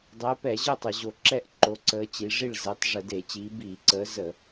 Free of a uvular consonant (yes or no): yes